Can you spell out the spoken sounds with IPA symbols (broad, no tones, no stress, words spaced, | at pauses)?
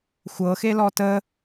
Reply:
xʷɤxelɔ tə